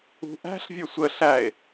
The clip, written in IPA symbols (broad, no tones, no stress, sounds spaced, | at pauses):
ṳ ʔ æ̤ ɬ vʲ ə˞ sʷ ə ɬ æ e̯